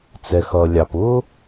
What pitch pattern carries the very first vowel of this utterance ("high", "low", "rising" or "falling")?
low